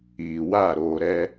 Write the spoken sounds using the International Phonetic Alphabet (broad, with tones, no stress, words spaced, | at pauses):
iː˨wa˦˨ ɾoː˨ɾɛ˦